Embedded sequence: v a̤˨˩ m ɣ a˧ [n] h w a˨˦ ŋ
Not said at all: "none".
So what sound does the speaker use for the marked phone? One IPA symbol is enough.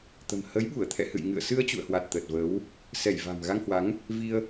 ŋ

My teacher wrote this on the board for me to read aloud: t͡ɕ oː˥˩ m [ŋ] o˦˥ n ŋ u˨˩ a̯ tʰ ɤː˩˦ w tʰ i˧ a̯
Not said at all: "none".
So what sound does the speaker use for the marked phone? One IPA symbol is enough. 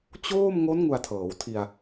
ŋ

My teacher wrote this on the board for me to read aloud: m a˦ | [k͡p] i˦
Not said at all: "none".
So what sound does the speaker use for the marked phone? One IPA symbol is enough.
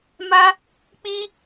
k͡p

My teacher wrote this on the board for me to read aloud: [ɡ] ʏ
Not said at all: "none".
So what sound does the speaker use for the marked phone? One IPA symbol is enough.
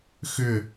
x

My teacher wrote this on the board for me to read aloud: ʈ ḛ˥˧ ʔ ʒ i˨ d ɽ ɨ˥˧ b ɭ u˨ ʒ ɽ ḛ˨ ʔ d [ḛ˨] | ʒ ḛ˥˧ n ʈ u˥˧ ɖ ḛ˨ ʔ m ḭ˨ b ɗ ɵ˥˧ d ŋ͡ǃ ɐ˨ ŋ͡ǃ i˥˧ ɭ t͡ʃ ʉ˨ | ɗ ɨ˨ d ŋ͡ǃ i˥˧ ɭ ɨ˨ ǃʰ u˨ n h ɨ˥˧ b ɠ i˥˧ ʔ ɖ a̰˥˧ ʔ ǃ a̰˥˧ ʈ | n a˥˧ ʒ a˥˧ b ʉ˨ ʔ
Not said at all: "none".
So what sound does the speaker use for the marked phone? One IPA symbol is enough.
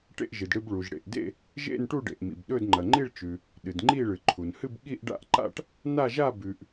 ḛ˥˧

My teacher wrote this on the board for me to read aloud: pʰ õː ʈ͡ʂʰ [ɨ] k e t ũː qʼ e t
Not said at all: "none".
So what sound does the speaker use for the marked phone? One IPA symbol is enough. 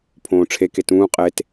e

